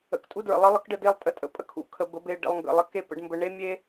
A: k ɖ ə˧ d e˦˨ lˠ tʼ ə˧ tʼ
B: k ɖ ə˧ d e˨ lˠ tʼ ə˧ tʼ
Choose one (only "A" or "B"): A